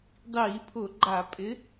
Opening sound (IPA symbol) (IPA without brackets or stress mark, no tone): dˤ